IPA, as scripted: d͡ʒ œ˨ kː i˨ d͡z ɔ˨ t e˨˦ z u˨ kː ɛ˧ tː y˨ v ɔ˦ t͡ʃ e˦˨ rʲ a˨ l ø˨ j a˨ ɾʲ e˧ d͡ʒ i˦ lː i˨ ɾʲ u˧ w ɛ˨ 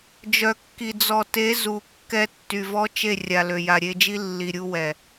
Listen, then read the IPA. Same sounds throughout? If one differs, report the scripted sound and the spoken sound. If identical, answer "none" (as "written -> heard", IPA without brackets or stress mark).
none